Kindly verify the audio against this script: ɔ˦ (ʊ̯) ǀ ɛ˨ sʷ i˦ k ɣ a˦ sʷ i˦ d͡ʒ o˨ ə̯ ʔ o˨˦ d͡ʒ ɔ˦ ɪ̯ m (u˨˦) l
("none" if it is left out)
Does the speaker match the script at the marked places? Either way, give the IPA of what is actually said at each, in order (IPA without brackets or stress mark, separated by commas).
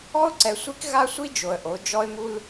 ʊ̯, u˦